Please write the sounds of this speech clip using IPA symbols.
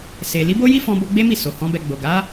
se˨li˨˦ bo˦ji˦ fɔ̃˧bo˧ ɡ͡be˦mi˦˨ so˨hɔ̃˨˦ bɛ˧ ɡ͡bo˨ɡa˨˦

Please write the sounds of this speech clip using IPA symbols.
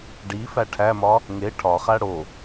ɖi fæʈʰæmɒ | ŋe ʈʰɒχæ ɽo

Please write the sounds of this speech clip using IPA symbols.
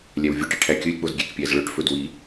lʲæwvʲoʈi ʈʰækʲɵlʲk͡poz ɡʲekpʲæzɭœʈfɵ dwi

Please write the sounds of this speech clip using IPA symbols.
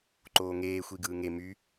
ǃoːŋeː xʷiɡɯːŋe my

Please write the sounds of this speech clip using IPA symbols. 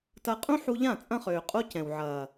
tɐ˧ qʼũ˦ħu˧ʎã˦˨ t͡sʼɐ̃˦χøː˨qʼo˦cɛ̃˨w ʕɐː˨

